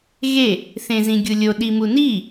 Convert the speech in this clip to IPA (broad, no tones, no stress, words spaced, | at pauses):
ɣe | θẽzĩɡʲulʲo ɗimuni